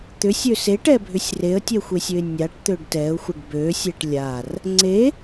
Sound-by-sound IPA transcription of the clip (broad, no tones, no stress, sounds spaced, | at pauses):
t̪ ʏ sʲ ø s e ʈ ɛ bʱ ʏ sʲ r e ə̯ tʲ ɛ xʷ e sʲ ø ɪ̯ nʲ a ʈ t̪ ø ɖ t ɛ ʊ̯ xʷ ə ɖ b ø sʲ ɛ ʈ lʲ a r | ŋ͡ǀ e